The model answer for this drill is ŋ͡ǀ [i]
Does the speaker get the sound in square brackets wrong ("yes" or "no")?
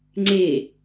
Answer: yes